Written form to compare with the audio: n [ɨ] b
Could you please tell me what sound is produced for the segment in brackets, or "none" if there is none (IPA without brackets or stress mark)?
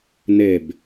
e